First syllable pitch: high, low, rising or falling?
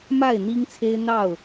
falling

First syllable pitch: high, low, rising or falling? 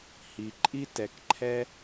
low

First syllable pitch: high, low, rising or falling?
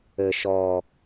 low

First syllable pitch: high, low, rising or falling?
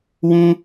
high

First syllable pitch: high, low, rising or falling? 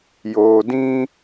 low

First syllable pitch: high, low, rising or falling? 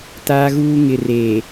high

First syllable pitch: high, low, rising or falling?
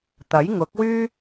rising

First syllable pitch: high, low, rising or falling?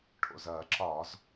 low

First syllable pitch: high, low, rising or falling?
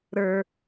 low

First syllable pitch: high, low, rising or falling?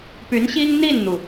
rising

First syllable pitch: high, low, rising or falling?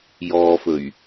low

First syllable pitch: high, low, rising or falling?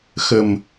low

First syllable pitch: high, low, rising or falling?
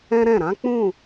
high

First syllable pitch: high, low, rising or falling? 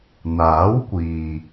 rising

